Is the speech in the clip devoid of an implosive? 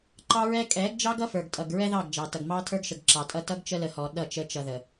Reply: no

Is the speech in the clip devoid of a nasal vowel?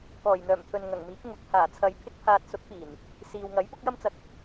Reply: yes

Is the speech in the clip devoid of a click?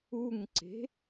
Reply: no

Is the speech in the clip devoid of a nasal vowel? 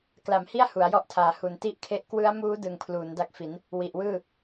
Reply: yes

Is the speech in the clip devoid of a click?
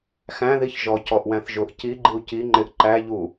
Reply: no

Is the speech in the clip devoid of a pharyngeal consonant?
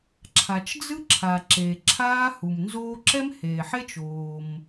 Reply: no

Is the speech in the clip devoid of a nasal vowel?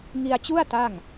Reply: yes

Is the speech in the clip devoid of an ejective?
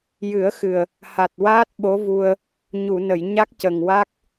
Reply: yes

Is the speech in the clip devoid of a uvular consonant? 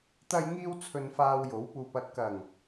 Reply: yes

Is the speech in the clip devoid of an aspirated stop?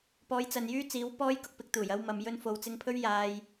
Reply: no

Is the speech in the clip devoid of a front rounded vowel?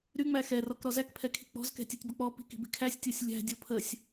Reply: no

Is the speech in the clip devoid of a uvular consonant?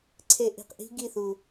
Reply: no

